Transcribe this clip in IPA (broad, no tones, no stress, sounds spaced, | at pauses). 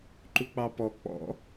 ǃ u k͡p ɑ p ɔ k͡p ɔ̰